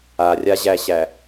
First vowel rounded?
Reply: no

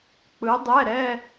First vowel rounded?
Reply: no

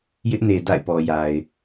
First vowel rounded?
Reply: no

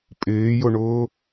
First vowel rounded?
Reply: no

